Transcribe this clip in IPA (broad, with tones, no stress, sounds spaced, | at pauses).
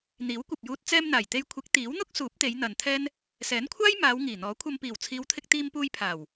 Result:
n̪ iː˨˥ w kʷ ɐ˨ p̚ j uː˧ t̚ t͡s ɛː˧ m n̪ aː˨˩ j t̪ e˧ j kʷʰ ɪ˨˥ k̚ t̪ iː˨˥ w n̪ ʊ˥ k̚ s uː˨˥ p̚ t̪ e˨˧ j n̪ ɐ˨ n t̪ʰ ɛː˥ n | s ɛː˨˥ n kʷʰ aː˥ j m aː˨˧ w ŋ iː˨˩ n̪ ɔː˨˥ kʷʰ ɐ˧ m p iː˨˩ w t͡sʰ iː˨˧ w t̪ʰ ɪ˧ k̚ t̪ iː˧ m p uː˧ j pʰ aː˨˩ w